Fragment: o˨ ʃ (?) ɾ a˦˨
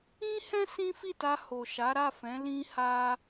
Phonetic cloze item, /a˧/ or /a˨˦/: a˨˦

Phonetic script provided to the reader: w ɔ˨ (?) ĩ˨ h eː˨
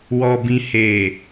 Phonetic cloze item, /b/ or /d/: b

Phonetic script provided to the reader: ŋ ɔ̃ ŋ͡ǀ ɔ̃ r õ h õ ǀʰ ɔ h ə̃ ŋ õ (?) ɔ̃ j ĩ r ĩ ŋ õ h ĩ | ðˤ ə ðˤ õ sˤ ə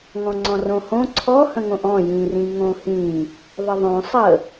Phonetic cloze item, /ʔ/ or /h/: ʔ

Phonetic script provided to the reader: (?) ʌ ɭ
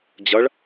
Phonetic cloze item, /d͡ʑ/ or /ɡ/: d͡ʑ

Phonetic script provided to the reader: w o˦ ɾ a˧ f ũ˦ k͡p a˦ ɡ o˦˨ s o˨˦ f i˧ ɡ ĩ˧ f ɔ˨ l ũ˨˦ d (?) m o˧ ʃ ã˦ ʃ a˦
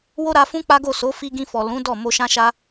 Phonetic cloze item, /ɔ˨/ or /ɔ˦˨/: ɔ˦˨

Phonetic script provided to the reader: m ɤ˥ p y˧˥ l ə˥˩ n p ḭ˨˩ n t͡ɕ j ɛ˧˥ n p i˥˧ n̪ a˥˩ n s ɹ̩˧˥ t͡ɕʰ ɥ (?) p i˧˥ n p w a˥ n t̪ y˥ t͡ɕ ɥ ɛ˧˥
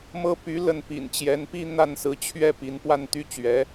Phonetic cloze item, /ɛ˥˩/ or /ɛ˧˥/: ɛ˥˩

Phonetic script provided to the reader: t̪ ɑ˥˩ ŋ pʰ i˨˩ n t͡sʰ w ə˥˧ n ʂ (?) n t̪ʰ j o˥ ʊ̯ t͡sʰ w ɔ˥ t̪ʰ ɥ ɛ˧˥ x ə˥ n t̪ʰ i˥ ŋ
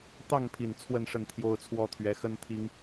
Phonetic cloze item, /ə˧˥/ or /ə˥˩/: ə˥˩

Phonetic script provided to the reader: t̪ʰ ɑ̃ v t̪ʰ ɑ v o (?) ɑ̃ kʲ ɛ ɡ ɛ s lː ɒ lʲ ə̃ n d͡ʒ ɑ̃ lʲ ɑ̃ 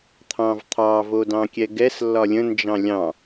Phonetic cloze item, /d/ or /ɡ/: d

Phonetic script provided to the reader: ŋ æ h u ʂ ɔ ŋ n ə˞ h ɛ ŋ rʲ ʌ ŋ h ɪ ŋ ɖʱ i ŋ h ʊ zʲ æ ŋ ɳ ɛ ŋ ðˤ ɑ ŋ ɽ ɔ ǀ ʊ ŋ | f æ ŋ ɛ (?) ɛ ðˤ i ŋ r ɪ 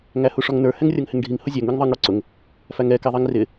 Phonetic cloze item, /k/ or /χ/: k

